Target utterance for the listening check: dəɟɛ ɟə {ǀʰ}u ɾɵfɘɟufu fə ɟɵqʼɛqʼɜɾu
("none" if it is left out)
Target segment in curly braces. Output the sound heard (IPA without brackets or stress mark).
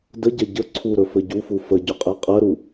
ǀʰ